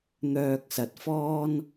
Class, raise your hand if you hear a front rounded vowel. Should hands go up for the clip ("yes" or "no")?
yes